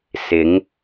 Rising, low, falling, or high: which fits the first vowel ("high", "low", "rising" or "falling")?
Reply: rising